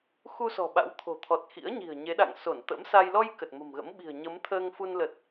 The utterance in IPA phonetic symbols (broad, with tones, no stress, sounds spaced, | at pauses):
x u˧ s ɔ̤˨˩ ɓ a̰˧˥ w t̪ʰ o̤˨˩ t̪ʰ ɔ˨˩ t̚ x ḭ˧˥ ə̯ ɲ i̤˨˩ ə̯ ɲ e˨˦ ɗ a̰˧˨ ŋ s o˧˩ n t̪ ə̰˧˥ m s a˧ j l ɔ˧ j k ə˨˩ t̚ m ə̤˨˩ m ɣ ə̰˧˥ m ɓ i̤˨˩ ə̯ ɲ ə˨˦ m t̪ʰ əː˧ ŋ f u˧ n l ə˨˩ t̚